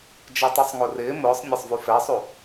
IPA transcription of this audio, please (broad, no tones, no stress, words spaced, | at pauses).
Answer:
d͡ʒɛtˤusˤŋorɪː mʊːsˤ nʲasˤvufɛsˤu